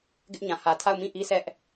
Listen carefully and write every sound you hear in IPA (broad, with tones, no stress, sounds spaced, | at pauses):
ɡ ɪ˦ ʔ ɲ ã˨ h ä˨ tʰ a˦˨ ʊ̯ m ĩ˦˨ ʔ i˦ sʰ ɛ˦ ʔ